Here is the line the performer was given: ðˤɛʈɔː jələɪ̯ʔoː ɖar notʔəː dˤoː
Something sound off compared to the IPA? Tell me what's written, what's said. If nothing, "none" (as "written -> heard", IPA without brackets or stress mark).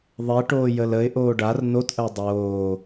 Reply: ɔː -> oː